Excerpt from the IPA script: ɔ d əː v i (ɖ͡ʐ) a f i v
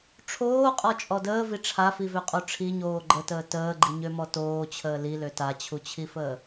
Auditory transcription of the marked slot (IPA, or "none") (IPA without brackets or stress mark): ʈ͡ʂʰ